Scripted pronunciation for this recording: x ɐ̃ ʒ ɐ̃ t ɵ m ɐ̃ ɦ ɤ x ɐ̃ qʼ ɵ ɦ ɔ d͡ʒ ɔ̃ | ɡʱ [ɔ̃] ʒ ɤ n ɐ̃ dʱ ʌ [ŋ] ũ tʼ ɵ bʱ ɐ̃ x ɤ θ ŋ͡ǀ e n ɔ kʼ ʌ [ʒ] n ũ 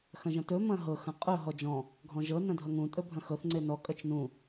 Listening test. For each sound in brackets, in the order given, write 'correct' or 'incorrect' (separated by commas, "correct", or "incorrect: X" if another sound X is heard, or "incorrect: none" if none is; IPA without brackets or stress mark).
correct, correct, incorrect: t͡ʃ